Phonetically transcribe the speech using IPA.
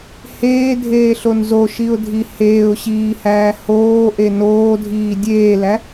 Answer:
h eː dʱ eː ɬ o n z o ʃ i ʊ̯ dʱ i h eː ʊ̯ ɕ iː h æː h oː ʔ e n oː dʱ iː dʲ eː l æ

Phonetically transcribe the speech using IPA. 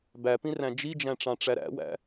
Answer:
b æ p ĩ r æ̃ d͡ʒ i d͡ʒ æ̃ ʈ͡ʂ ɑ̃ ʈ͡ʂ æ ɾ æ̰ w æ̰

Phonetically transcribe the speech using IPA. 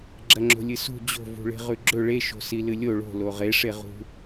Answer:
ɡ͡ǁ ɐ ŋ͡ǁ o̤ lʲ ɨ s ṳ d͡ʑ o̤ v ṳ ɭ e̤ ʁ ʉ ɡ͡ǁ ɵ ɭ e ʃ o̤ s i l ɨ lʲ o ɭ o̤ l o ʁ e ʂ e ʁ ṳ

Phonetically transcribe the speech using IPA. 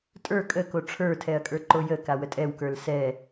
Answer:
tʼ ə˞ kʼ ə k o ʈ͡ʂʰ ə˞ tʰ ɛ ɐ̯ kʼ ə˞ ǃ o j ə k a w ə tʼ ɛ w k ə˞ l s ɛ

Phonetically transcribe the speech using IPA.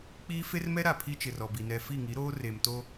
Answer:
k͡p iː˦ f e˦ r m ɛ˦ ɾ a˨ pʰ i˦ t͡ʃ ɪ˨ r ɔ˨ b i˨ n ɛ˨ f i˦˨ ŋ i˨˦ ɾ oː˦ r e˨ m t o˦

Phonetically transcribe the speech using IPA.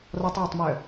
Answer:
r ɔ tˤ j ø tˤ m œ

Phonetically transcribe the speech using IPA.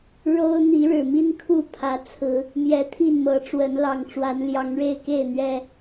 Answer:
ɻ o˦ ʊ̯ n̪ i˨˦ ɻ ɻ̩˨˩ m i˦ n kʰ u˥˨ pʰ ä˨˦ t͡sʰ ɹ̩˨˦ | m j ɛ˨˦ t̪ʰ i˥˨ n m ɤ˨˦ ʈ͡ʂ w ə˨˦ n l ɑ˨˩ ŋ ʈ͡ʂ w a˨˦ n l j ɑ˨˦ ŋ ɻ e˥˨ ɪ̯ k e˥˨ ɪ̯ n̪ ɥ ɛ˨˩

